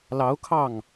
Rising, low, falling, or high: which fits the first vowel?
rising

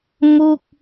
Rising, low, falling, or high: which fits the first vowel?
falling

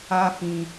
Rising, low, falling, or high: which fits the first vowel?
high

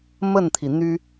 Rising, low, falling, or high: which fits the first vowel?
falling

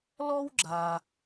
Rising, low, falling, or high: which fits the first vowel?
high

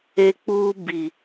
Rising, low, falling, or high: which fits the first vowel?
high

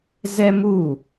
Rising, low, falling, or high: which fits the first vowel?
high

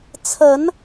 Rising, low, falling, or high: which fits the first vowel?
rising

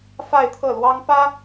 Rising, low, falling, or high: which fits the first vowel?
falling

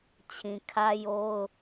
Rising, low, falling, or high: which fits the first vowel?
low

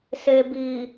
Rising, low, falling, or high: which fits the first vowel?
low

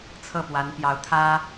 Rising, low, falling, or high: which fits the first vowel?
falling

